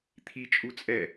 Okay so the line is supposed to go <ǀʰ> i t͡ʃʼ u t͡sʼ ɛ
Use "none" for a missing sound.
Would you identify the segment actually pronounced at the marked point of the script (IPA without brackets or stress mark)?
t̪ʰ